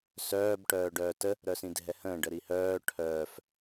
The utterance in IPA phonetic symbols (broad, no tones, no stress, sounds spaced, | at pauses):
s œː b ʈ œː ɖ œː t ə | ɾ œ s ĩ dʱ ɛ h ə̃ː ɖ ə ɾ i h œː ʈʰ œː f